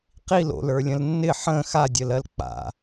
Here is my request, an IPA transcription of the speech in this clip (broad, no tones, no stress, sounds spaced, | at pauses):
q i l o̰ l ə˞ lʲ ə̃ l nː ɪ ħ ə̃ x a dʲ ə l ɜ l k͡p a̰